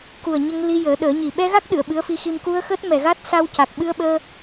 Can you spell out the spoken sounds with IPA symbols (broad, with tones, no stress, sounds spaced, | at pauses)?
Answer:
k u˨˩ ə̯ ɲ ə˧ ŋ l i˧ j əː˨˩˦ ɗ əː˨˩˦ ɲ i˨˩ ɓ ɛ˧ ɣ a˦˥ k̚ ɗ ɨ˨˩˨ ə̯ ɓ ɨ˧˥ ə̯ f i˧ x i˧ m k u˧ ə̯ x əː˦˥ t̚ m ɛ˨˩ ɣ a˦˥ t̚ s a˧ w c a˨˩ k̚ ɓ ɨ˧ ə̯ ɓ əː˧